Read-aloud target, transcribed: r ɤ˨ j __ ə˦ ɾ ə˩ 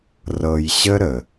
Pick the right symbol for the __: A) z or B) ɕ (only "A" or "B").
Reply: B